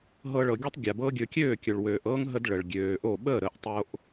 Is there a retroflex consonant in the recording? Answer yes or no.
yes